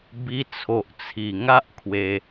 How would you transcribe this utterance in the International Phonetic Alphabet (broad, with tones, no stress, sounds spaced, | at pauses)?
b i˧ t͡sʰ o˨ ʔ t͡sʰ i˨˩ ŋ a˦ ʔ kʰ w e˧